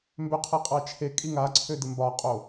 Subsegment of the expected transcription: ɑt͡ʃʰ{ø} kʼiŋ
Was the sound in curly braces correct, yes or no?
no